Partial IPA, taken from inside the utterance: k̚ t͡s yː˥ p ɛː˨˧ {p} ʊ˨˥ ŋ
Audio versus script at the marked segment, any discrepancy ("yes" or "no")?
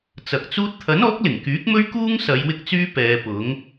no